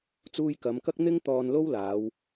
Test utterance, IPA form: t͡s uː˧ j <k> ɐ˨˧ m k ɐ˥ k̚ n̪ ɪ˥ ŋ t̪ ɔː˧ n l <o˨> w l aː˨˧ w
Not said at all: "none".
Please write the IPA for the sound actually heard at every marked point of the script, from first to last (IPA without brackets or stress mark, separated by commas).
k, o˥